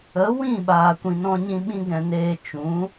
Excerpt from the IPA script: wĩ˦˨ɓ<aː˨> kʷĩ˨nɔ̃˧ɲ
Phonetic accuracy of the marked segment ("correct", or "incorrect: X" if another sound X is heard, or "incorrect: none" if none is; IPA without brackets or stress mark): correct